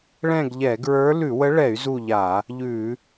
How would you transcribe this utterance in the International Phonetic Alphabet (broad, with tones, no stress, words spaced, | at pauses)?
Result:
ɭɛ̃˦˨ɡʎɛ˧˩˧ɡɹə˞˧˥ lʉ˧˩˧wə˧˥ɭɛ˧˩˧y̯ zu˦˨ʎa˧˩˧ | ʎʉ˧˩˧